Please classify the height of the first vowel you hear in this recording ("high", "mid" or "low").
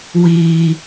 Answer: high